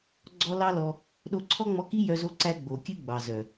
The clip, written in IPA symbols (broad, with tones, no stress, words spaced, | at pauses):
ɡ͡ǀɔ˦lɑ˦lɔ˧ | ɗo˧ǀʰɔ˦ŋ͡mɔ˧ki˦ jœ˧zo˧ǀæ˧ ɡ͡bo˨kʲɨ˧ ɡ͡bɑ˨zœ˨